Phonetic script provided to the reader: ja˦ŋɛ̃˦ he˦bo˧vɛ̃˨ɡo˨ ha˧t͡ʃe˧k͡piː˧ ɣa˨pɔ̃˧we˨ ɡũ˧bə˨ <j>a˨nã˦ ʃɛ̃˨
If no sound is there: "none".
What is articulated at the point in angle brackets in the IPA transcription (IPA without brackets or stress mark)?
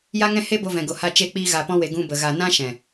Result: ɣ